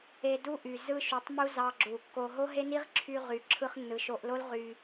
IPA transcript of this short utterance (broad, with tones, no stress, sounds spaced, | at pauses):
e˧ d u˦ ʔ y˨ z ɯ˧ ʃ y˨ tˤ m u˧ z ɑ˧ ɡ͡ǁ u˨ kː o˧ ɦ o˦ ɦ e˦ n i˦ ʁ ǁʰ y˧ ʁ y˨ ǁʰ ɯ˧ χ nː ɯ˨ ʃ o˧ ʔ l o˦ l ʁ y˧